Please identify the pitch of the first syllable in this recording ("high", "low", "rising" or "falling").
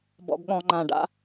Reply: low